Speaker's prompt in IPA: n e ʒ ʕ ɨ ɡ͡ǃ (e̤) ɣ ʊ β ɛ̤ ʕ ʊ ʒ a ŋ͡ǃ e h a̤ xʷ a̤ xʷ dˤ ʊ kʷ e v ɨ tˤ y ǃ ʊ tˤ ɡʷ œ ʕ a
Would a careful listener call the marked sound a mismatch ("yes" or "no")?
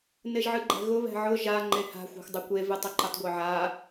yes